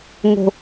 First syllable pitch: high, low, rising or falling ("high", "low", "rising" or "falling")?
low